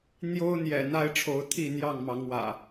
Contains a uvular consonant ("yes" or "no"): no